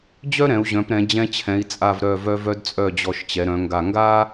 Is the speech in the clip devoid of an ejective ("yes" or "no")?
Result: no